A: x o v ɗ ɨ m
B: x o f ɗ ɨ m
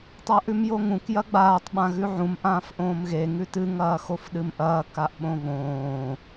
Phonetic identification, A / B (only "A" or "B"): B